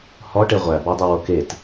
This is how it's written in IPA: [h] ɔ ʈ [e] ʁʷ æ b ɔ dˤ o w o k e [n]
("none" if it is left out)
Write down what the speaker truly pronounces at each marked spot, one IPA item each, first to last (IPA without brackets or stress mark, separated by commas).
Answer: h, e, t